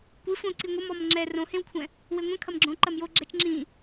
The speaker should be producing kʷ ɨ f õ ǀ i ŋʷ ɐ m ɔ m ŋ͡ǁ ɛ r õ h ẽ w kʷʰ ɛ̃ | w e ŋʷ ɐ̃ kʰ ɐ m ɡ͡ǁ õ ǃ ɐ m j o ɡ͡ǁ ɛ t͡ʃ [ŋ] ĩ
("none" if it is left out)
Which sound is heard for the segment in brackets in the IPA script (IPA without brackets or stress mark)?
ŋ͡ǁ